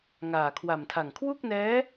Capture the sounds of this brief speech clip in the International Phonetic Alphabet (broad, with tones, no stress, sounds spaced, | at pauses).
ŋ aː˨˩ kʰ w a˨˩ m tʰ a˨˩ ŋ kʰ w u˥˩ k̚ n ɛː˦˥